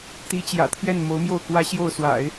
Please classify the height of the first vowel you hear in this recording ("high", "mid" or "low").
high